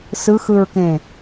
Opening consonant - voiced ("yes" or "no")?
no